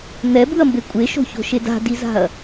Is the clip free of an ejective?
no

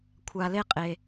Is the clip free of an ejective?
no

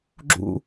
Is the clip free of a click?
no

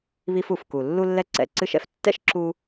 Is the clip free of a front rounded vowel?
yes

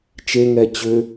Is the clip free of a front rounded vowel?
no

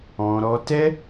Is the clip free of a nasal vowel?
no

